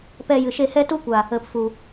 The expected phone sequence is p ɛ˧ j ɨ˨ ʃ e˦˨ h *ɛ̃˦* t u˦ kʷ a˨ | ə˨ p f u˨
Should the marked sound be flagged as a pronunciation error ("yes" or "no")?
yes